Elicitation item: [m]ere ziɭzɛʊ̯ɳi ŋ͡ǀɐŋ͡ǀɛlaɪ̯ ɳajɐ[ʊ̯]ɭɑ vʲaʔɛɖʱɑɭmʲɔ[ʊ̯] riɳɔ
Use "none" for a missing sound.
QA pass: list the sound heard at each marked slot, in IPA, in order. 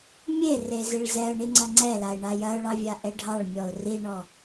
mʲ, ʊ̯, ʊ̯

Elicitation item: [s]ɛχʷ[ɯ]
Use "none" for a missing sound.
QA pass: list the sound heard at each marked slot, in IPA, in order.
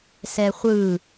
s, ɯ

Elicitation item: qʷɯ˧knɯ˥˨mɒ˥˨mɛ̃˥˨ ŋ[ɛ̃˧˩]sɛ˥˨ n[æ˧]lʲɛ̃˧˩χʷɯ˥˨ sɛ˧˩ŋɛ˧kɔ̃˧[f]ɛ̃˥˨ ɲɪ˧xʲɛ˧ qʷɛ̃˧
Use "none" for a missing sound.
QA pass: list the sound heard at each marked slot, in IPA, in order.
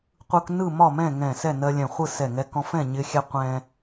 ɛ̃˧˩, ɜ˧, f

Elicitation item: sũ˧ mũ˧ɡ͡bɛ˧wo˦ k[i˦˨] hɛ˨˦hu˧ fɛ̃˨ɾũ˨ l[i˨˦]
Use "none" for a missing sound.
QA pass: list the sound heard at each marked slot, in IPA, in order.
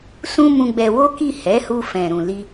i˦˨, i˧

